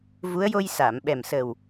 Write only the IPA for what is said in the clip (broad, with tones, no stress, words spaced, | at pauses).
vu˧˥ə̯ jo˧jsa˨˩˨mɓɛ˨˩msəː˨˩w